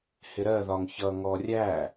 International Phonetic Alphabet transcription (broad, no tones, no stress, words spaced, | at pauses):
hɪɾɜðɒŋ çʌŋɔ rʲæ